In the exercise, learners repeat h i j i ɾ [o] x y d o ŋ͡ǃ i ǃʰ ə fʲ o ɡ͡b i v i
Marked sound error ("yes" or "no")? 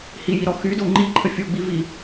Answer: yes